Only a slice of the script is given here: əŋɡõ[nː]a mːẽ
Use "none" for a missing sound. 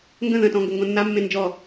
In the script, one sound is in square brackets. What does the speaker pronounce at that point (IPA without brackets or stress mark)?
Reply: nː